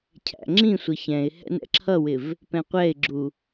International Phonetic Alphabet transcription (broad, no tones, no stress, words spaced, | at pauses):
cʰæ̰ŋ͡ǁĩsʷʌ çɛ̃ɪ̯hɛ̰ nɛ̰ǁʰʌwɪv | pɛ̃qʷɛɪ̯ɡ͡ǁu